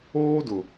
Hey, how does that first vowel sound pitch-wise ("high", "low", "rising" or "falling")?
high